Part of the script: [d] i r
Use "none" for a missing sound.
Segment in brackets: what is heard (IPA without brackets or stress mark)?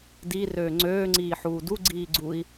d